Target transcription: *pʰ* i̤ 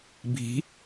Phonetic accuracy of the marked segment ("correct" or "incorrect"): incorrect